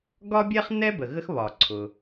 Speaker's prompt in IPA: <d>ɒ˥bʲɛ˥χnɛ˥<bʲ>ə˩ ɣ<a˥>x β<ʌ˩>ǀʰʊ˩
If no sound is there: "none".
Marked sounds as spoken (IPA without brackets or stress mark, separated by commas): ɡ, b, ə˥, ɒ˩